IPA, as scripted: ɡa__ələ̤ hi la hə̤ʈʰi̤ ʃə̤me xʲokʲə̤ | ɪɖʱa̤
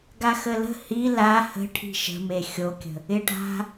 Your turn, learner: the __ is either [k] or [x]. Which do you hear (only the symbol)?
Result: x